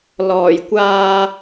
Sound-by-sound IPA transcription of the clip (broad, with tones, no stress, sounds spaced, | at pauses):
l ɔː˨˩ j kʷ aː˧